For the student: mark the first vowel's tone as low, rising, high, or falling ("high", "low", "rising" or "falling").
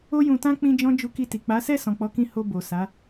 high